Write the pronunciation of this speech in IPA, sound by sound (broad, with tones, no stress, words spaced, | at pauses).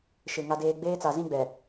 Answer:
ʃɪ˨ ŋa˦deː˦ ɡ͡beː˦t͡sa˨zĩ˦ɡ͡bɛ˨